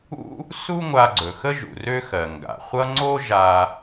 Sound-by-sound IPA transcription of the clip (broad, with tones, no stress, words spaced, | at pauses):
ṵ˥ | su˥ŋʷa˧ɡ͡ǀɵ˩xə˥ ʒṵ˩rø˥xɜ˩ ŋɡa̰˩χʷʌ˥ ŋ͡ǀo˥ʒa˧